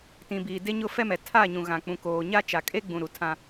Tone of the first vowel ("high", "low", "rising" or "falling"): low